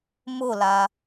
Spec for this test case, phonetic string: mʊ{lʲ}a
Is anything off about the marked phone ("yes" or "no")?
yes